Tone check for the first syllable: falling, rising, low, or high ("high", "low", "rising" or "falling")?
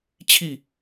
falling